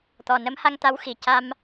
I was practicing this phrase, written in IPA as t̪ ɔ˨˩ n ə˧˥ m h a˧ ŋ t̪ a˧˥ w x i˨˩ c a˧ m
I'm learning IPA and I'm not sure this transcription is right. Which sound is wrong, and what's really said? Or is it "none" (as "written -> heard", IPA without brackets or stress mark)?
none